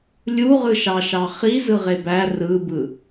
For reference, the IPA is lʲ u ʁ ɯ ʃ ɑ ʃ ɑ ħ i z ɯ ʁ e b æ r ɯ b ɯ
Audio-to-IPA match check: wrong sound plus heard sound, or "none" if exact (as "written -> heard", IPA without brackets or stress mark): ħ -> χ